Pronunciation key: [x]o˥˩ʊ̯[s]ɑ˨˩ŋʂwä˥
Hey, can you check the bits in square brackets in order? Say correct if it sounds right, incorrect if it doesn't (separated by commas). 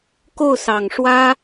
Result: incorrect, correct